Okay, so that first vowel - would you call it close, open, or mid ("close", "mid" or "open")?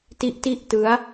close